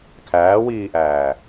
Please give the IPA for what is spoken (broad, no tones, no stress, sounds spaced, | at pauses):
kʰ æː w iː ʔ æː